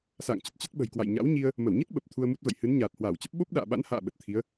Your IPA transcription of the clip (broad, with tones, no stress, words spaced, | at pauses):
sa̰ː˧˨ŋt͡ɕə˨˩t̚ t͡ɕə˦˥t̚ɓə̤˨˩jkwa̰˧˨j ɲa̰˧˥wɲi˧ə̯ | mə˧˩wɲi˦˥t̚ ɓə˨˩p̚ t̪ʰu˧ə̯mu˦˥t̚və̰˧˨j hɨ˨˦nɲaː˨˩t̚hwaː˧˩wt͡ɕə˦˥p̚ ɓo˦˥p̚ɗa̰ː˧˨ɓa̰˧˥nha̰ː˧˨ ɓə˨˩t̚t̪ʰi˨˦ə̯